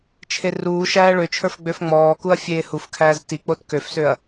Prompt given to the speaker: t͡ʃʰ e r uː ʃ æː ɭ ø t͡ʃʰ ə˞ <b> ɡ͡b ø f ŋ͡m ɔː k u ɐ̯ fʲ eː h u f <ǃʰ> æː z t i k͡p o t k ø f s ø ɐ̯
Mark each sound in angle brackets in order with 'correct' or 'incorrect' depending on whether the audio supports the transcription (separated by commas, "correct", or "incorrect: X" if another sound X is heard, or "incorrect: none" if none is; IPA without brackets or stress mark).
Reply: incorrect: f, incorrect: kʰ